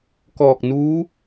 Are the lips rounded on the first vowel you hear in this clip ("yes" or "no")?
yes